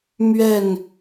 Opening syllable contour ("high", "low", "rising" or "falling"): falling